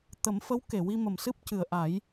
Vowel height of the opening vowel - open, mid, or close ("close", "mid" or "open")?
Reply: mid